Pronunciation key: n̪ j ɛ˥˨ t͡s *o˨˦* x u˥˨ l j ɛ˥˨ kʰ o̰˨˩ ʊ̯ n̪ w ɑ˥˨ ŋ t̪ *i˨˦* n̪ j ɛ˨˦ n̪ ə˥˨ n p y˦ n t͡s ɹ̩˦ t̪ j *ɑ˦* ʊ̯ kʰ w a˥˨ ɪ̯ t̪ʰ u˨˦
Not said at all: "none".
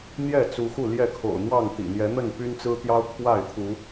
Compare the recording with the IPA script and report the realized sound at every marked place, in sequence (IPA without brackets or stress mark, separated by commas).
u˨˦, ḭ˨˩, ɑ˦